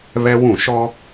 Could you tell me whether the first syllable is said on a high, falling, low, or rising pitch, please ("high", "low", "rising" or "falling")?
high